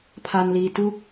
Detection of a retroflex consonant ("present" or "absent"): absent